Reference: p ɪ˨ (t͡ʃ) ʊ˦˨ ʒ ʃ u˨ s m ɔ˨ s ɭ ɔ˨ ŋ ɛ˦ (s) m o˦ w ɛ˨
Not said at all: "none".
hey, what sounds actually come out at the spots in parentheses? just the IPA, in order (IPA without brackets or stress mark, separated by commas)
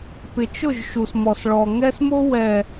t͡ʃ, s